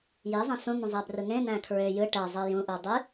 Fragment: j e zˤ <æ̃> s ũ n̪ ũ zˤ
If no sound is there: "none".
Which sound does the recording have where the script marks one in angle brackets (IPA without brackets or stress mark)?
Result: æ̃